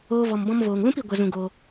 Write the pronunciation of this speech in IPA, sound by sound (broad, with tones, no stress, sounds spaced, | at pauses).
oː˦ v ɔ˧ m b ɔ̃˦ m v oː˨ ŋ l ũ˦ p i˧ ɡʷ ə˧ z ũ˧ ɡ o˧